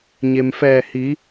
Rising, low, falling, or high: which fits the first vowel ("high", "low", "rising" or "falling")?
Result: low